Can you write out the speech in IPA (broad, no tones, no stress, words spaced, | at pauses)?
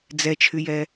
d͡zɛt͡ʃʰyjɛ